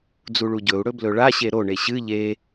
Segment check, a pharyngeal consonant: absent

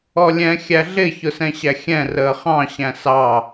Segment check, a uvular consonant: present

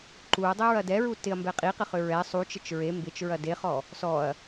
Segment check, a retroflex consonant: absent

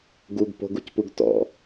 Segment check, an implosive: absent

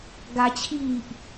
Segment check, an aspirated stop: present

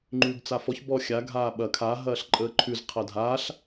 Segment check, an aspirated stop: present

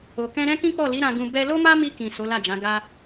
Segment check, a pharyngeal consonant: absent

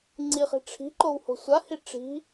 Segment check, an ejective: absent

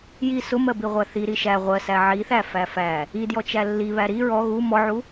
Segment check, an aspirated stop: absent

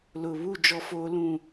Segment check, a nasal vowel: present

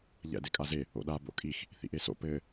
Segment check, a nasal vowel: absent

